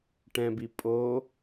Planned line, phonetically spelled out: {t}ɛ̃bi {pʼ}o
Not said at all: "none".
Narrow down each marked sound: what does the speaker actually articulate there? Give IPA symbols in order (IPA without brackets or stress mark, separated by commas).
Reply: ʈ, pʼ